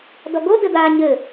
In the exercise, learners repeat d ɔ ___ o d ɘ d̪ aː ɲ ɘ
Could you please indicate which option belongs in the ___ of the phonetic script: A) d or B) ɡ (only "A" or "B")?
B